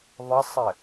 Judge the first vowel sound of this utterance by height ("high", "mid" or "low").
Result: mid